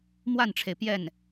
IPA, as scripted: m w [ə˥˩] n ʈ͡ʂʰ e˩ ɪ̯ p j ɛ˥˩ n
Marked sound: incorrect: a˥˩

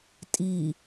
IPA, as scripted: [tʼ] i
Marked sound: correct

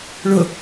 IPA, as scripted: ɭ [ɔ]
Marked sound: incorrect: ʊ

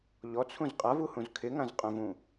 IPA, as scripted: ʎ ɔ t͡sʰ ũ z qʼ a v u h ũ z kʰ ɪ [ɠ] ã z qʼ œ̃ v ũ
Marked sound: incorrect: ŋ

